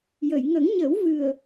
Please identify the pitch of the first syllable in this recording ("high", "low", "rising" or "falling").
low